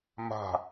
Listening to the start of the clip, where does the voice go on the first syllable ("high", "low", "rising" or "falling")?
falling